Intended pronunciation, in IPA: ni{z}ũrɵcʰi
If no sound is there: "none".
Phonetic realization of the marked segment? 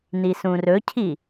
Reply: s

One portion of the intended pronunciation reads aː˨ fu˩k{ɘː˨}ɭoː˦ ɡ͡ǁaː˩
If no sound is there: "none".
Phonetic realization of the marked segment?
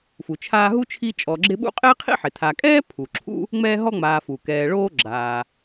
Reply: ɛː˨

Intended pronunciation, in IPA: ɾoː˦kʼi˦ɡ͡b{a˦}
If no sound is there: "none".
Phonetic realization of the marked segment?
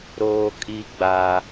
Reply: a˦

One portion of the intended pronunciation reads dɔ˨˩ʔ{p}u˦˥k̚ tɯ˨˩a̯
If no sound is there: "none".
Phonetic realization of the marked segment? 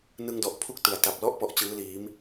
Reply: pʰ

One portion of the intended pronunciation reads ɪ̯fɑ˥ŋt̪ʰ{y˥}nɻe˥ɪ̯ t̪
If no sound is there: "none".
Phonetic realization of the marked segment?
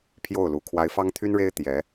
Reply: y˥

